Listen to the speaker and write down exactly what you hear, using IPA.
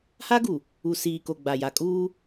ha˦ɡu˨ | u˨siː˨ko˨ ɡ͡ba˨ja˨kʼuː˦

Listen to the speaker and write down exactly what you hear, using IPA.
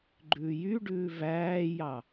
ɡ͡ǃʉːjyɖʉː væːjɑ

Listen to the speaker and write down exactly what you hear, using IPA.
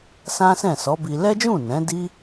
sã˦sɛ̃˦˨sɔ˨˦bi˧ lɛ˦d͡ʒũ˦˨ nɛ̃˨˦di˦

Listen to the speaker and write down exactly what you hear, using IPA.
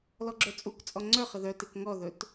lɔɡ͡ǁœt͡sʼukt͡sʼɔ ŋ͡ǀœχə ðœtek ŋɔðɵt

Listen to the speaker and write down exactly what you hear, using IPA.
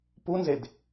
punzed

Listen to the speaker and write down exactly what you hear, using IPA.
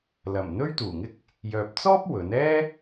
lɐ˨˩m n̪ɵ˥ɥt̪uː˨˩ŋɪ˥k̚ | jœː˨p̚t͡sɔː˥p̚ wɵ˨˥n ɛː˥

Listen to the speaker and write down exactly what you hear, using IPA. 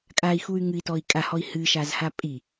kʼai̯xuy̯ ŋɨi̯tɔi̯ kʼahɔi̯ hɨʃazha pʼi

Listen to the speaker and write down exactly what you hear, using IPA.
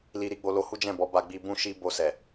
li˧ɾi˧ɡ͡bo˧ lo˧hu˦ d͡ʒɛ̃˦˨bɔ˨˦ ba˧ɡ͡bi˧ bũ˦ʃi˦ bo˧sɛ˨

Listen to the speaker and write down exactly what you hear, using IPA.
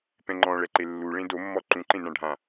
pɛ̃ŋ͡ǃɔ̃ɭɛǃe lːuɭẽ domːɔ ǃũǃẽnã ɖʱã

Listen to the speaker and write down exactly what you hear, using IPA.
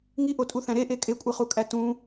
ŋiʔotʼuθæ̃ ɾeʔe kʼekʷʼeχukʼæ tũ

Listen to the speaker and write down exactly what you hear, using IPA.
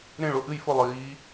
ɾẽ˥˨ɭʊ˥˨ ʔɨ˥˨jfʊ˥˨ lˠiː˨˦

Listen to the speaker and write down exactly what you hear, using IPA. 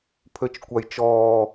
pʰøt͡ʃkʷajt͡ʃɔː

